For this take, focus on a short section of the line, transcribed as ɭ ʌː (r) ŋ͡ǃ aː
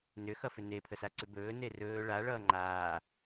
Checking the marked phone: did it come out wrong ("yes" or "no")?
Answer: yes